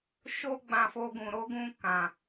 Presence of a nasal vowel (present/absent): present